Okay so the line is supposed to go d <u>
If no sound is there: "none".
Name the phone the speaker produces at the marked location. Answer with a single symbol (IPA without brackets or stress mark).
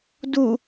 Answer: u